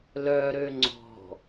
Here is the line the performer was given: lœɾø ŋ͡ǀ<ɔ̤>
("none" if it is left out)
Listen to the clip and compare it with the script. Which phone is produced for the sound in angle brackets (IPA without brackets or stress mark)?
ɔ̤